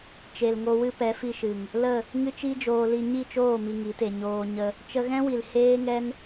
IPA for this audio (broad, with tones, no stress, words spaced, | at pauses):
t͡ʃe˨lŋo˧wɨ˦ pɛ˨˦fi˧ʃɨ˨ŋ | lə˦˨ | ŋɨ˦t͡ʃi˦d͡ʒoː˧li˧ ɲi˦˨t͡ʃoː˦˨ mi˧ŋi˨˦te˧ ɲoː˧ ɲə˧ | t͡ʃə˧ɣɛ̃˦wi˨l heː˦ŋɛ˦n